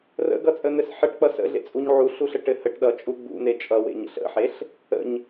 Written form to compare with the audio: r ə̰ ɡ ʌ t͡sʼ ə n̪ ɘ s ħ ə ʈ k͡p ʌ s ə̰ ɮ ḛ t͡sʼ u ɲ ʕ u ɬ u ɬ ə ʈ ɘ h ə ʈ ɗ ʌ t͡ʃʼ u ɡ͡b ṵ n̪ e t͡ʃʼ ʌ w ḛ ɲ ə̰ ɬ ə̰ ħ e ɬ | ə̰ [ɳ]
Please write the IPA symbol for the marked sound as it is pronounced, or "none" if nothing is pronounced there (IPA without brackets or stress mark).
ɲ